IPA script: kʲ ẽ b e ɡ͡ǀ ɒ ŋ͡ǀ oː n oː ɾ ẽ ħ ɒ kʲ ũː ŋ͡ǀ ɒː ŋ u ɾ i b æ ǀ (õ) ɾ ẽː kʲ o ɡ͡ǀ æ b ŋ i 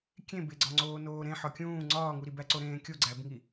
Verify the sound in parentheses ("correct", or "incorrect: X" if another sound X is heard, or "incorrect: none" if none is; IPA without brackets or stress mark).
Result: incorrect: o